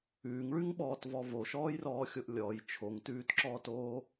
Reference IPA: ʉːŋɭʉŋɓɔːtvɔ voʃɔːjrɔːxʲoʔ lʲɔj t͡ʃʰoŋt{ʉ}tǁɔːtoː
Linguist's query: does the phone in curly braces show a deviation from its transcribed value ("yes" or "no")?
yes